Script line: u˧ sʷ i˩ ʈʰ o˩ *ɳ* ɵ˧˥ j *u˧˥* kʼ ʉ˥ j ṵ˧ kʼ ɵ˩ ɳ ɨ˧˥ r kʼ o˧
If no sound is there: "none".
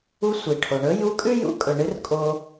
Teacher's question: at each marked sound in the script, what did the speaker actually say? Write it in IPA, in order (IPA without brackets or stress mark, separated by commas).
ɳ, u˧˥